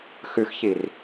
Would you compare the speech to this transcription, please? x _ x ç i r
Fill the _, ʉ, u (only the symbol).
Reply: ʉ